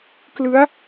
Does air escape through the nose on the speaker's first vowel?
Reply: no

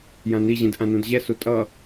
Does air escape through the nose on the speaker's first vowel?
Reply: yes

